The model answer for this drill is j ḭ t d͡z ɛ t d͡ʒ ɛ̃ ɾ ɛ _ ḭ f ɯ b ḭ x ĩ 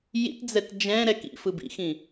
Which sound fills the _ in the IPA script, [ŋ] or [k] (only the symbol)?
k